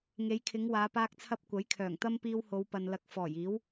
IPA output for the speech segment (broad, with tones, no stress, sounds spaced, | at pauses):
ŋ e˨˧ j kʰ ɪ˨˧ ŋ w aː˨˧ p aː˧ k̚ t͡sʰ ɐ˧ p̚ kʷ ɐ˨˥ j kʰ œː˨˩ ŋ t̪ ɐ˥ m p iː˧ w h o˨˧ w p ɐ˨ n l ɐ˨˥ k̚ f ɔː˨˩ j iː˨˥ w